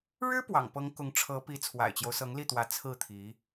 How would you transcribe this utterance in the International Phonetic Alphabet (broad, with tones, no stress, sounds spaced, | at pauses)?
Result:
ɻ ɻ̩˥ p w ɑ̰˨˩ ŋ p ɤ˧˥ ŋ k ʊ˧˥ ŋ ʈ͡ʂʰ ɤ˧˥ p i˧˥ t͡sʰ w a̰˨˩ ɪ̯ t͡ɕ j o˦ ʊ̯ s ɤ˧˥ ŋ l i˥˩ t̪ w ä˧˥ t͡sʰ ɹ̩˥˩ t̪ʰ i˧˥